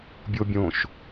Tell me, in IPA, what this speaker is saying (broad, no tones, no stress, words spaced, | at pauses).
bʲobʲõʃ